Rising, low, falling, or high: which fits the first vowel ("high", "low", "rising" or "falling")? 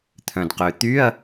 low